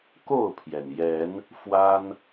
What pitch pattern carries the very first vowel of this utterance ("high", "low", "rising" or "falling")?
falling